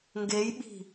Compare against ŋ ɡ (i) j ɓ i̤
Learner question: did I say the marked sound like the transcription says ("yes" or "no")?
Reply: no